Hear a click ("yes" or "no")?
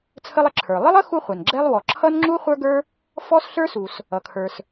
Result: yes